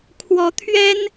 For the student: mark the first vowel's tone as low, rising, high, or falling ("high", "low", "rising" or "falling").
rising